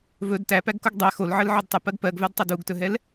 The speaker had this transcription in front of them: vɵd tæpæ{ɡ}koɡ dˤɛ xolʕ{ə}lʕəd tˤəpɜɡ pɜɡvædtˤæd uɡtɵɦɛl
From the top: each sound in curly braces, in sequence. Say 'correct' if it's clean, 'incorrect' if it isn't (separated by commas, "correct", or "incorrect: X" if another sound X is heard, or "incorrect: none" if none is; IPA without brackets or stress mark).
correct, correct